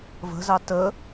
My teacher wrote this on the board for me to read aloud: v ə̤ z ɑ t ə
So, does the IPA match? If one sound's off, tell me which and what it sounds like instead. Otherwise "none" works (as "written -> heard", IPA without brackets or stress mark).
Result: none